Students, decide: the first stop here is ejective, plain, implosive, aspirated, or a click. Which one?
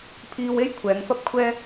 aspirated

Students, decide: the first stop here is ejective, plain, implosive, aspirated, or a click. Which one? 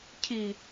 aspirated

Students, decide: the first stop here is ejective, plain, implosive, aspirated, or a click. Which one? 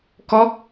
plain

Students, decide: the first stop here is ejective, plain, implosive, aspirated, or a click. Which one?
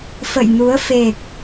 plain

